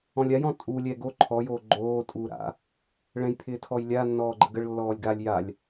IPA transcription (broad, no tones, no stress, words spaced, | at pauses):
ɔ̃lʲajɔ̃ tʼu lʲɛɡo ǃʰɔjoː ɡ͡ǃoː tʼuːɾa̰ | ɭɛ̃jpʰɪːtʰɔj lʲa nːɔːɡ͡ǃəɡəɭ lːɔːlʲɡalʲ jalʲ